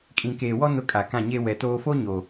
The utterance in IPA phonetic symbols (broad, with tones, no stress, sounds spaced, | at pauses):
kʼ ĩ˨ k eː˨ w ɔ˦ n ʊ˦ kʼ a˨ k ã˦˨ ɲ e˦ w ɛ˨ t oː˦ f o˦ ɲ o˨